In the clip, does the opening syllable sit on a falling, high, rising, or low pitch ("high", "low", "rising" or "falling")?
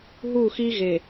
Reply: falling